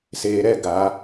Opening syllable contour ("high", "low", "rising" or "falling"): low